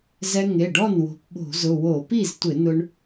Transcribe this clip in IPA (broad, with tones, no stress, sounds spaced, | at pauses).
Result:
z ɛ˧ ŋ e˩˧˩ ɖ ɔ˥˩ n w o̤˧ p ɓ o̤˧˩˧ z ʊ˩˧˩ w o˧˩˧ p i˥˩ z tʷ ɪ˧˩˧ n ʊ˧ ɳ